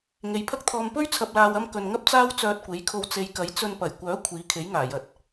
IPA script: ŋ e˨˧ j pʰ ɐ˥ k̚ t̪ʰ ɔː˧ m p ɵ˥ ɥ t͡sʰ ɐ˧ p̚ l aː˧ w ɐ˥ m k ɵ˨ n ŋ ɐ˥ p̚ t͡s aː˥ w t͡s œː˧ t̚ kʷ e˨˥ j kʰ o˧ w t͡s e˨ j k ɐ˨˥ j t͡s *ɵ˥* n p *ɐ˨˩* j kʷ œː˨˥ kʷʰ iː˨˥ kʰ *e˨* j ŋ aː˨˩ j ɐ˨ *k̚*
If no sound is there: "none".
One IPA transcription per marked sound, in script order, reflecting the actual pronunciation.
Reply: ɵ˧, ɐ˨˩, e˨˥, t̚

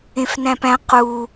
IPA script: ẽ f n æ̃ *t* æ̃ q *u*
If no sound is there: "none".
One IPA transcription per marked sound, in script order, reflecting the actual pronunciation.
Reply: p, u

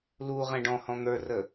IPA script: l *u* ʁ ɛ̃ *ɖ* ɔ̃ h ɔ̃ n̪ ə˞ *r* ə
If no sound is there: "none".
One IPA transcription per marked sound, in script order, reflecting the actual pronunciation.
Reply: u, ɖ, r

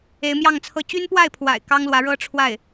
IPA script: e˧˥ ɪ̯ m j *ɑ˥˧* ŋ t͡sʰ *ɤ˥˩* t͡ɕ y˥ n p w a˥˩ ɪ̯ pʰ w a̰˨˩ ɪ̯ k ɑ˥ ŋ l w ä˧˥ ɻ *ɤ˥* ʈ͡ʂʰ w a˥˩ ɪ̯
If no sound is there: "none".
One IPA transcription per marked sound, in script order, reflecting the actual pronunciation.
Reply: ɑ˥˧, ɤ˥˩, ɤ˥

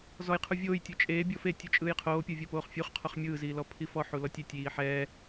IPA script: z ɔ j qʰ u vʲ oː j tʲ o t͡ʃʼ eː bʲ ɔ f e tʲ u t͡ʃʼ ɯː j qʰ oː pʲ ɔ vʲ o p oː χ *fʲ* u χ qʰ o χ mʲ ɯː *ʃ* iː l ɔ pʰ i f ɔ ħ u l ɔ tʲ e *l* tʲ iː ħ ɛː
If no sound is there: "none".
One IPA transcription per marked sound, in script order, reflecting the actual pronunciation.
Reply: fʲ, z, none

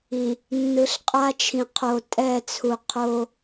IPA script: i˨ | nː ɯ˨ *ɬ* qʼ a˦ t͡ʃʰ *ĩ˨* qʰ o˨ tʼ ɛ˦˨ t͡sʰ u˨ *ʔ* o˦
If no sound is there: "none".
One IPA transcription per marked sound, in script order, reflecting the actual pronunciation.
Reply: ɬ, ĩ˨, qʰ

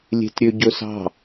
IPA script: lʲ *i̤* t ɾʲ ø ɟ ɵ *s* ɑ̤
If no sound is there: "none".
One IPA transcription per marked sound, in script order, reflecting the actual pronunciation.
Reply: e̤, s

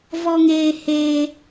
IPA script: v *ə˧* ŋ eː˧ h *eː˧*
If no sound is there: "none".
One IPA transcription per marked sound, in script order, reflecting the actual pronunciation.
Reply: ɔ˧, eː˧

